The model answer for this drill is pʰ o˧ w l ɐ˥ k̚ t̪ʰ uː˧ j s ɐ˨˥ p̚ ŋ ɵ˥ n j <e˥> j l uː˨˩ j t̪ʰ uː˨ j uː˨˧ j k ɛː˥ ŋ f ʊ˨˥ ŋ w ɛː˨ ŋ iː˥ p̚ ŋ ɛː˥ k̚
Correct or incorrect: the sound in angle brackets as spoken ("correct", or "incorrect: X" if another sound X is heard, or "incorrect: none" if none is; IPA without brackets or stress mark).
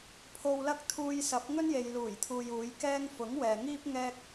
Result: incorrect: e˨